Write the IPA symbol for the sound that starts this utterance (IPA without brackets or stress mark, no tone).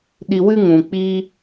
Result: ɗ